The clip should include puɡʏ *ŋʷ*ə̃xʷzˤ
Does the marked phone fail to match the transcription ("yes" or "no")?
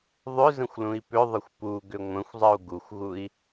no